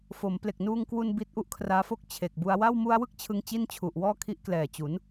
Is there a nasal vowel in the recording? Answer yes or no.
no